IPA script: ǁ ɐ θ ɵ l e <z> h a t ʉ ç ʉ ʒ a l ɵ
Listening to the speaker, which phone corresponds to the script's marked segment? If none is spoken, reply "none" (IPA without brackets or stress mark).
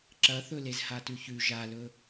z